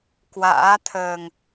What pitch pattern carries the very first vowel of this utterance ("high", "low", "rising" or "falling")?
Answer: rising